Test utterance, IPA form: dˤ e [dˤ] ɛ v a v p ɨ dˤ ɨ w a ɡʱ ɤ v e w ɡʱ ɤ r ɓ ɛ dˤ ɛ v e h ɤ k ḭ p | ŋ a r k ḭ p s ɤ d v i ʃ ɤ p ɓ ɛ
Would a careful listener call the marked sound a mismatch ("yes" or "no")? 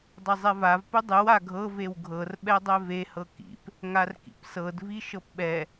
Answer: yes